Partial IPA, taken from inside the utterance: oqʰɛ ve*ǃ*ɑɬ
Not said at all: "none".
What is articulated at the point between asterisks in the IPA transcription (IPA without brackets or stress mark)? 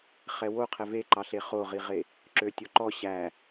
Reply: ǃ